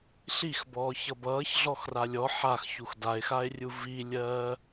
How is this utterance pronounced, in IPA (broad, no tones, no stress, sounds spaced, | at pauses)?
ɬ i x b ɔː ç ʌ b ʌː ç ɮ ɔ x r a lʲ ɔ ħ a x ç u x d a e̯ x a e̯ rʲ u v i lʲ ɜː